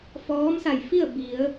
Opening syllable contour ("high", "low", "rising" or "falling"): rising